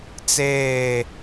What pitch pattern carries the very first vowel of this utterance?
falling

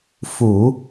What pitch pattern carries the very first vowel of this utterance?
low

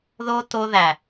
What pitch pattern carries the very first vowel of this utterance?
high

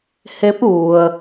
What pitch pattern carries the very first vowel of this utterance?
rising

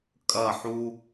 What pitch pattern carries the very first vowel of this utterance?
falling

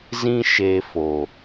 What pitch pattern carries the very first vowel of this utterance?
high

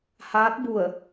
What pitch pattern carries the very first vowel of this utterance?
rising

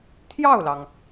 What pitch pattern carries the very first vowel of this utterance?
falling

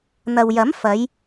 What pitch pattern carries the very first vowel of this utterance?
low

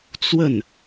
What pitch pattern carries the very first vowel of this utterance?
falling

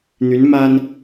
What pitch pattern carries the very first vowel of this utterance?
rising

